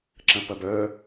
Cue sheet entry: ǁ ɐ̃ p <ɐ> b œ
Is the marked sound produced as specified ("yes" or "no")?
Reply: yes